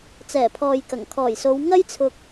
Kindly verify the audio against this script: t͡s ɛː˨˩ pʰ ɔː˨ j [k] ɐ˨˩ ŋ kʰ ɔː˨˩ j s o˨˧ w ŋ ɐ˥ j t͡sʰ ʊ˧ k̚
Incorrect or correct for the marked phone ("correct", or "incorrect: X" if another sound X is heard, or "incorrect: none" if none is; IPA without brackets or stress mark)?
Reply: correct